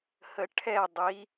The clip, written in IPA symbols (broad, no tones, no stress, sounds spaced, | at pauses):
h ə ʈʰ ɛ dˤ i